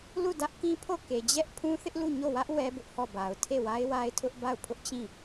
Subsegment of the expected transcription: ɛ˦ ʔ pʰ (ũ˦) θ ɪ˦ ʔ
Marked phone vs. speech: correct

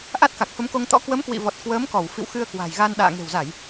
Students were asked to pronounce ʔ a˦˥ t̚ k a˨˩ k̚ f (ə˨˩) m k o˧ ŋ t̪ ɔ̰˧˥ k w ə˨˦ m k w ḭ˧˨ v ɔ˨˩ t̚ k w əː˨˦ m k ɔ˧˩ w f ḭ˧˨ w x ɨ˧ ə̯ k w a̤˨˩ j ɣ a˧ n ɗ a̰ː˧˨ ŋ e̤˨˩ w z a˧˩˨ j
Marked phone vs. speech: incorrect: ə˨˦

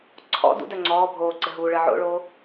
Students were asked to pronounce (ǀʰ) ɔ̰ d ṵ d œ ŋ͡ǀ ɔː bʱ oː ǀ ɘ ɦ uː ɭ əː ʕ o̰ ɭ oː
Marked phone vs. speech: correct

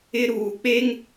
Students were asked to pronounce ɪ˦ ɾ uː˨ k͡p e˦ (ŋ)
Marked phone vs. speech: correct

